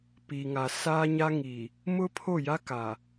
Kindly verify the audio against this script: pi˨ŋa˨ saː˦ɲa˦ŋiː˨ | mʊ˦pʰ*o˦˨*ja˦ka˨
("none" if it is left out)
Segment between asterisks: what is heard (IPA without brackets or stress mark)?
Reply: o˦˨